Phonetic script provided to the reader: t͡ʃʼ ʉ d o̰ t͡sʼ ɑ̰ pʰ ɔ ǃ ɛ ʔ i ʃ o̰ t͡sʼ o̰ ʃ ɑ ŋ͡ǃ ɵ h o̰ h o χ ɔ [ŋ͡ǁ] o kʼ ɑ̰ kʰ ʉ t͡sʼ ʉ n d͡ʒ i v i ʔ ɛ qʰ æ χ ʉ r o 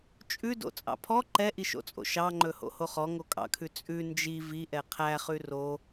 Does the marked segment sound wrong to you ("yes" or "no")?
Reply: yes